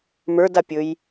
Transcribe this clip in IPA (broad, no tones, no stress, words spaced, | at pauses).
mə˞dapʲɵj